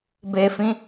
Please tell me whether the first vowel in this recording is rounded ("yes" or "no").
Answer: no